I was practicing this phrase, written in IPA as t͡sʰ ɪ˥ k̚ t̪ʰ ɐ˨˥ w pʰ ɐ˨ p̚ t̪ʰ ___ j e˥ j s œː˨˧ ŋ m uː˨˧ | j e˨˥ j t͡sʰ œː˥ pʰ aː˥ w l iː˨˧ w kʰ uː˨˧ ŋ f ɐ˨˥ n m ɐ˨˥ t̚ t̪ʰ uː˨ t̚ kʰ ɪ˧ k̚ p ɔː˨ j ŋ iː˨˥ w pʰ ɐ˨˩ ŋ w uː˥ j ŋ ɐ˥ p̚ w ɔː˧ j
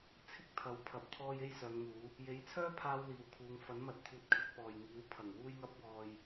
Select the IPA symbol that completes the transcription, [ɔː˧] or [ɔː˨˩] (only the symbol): ɔː˧